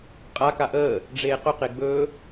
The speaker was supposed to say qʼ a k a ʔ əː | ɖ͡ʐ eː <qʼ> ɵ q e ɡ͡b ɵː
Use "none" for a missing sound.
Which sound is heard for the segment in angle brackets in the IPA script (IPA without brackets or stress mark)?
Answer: q